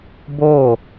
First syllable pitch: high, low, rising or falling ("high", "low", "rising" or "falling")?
falling